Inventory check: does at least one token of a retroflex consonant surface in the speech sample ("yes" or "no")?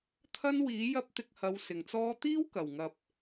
no